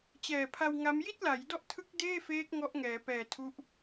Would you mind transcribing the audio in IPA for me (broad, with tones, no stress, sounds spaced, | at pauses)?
t͡ɕ ɛː˨˩ pʰ a˧ w ŋ a˦˥ m j i˥˩ t̚ l a˩˦ j d ɔ˦˥ ʔ tʰ ɯ˦˥ k̚ d eː˥˩ f eː˦˥ k̚ ŋ ɔ˦˥ ʔ ŋ ɛː˩˦ p ɛː˨˩ tʰ u˦˥ ʔ